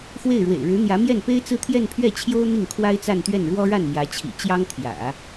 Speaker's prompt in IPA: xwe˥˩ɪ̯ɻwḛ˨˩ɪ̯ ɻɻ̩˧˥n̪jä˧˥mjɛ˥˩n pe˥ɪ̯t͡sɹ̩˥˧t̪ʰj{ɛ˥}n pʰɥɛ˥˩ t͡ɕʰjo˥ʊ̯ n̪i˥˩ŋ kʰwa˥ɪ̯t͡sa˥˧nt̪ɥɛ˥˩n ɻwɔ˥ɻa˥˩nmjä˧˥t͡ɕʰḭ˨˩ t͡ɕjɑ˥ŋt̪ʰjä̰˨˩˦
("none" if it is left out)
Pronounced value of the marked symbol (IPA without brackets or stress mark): ɛ˥˧